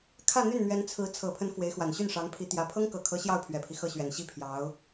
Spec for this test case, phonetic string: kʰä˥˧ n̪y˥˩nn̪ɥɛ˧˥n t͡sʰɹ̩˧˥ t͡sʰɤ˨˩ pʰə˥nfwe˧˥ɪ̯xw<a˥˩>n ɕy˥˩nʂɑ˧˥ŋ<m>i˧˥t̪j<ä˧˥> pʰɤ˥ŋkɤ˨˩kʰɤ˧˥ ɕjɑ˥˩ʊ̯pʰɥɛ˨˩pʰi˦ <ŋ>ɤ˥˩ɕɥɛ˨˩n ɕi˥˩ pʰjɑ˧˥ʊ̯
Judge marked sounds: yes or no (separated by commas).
no, no, yes, no